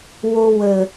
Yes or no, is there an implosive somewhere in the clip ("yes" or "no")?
no